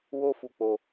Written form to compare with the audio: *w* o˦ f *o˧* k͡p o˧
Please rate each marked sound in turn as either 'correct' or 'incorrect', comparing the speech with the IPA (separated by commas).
correct, incorrect